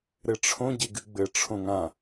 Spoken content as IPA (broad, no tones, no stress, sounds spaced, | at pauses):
ɾ ɘ ʈ͡ʂʰ õ ɟ e ɡ ɨ ɡ͡b ɘ ʈ͡ʂʰ õ ŋ ã